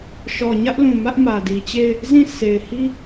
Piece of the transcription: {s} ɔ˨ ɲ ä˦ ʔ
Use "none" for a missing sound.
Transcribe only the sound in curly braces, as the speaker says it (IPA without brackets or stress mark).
ʃ